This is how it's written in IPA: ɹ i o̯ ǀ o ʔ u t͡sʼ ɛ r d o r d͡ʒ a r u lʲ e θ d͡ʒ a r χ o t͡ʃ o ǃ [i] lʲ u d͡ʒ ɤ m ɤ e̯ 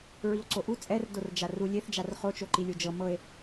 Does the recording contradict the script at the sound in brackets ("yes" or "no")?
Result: no